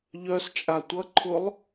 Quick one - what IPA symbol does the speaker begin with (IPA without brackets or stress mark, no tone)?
ʎ